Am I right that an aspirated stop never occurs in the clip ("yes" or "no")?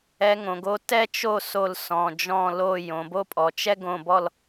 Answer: yes